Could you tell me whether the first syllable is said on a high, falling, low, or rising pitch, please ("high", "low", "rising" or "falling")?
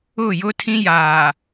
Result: falling